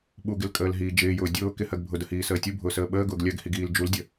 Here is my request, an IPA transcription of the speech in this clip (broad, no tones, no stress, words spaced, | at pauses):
ɓuɡɪlkʼəːlɦiː d͡ʒɪːjʊː dʲʊː kɪhɜɡ bʱʊdəhiːsəː tʲubʱʊːsəː ɓəːɡʊːɡ lʲɜɡhiɡiːl d͡ʒuldʲə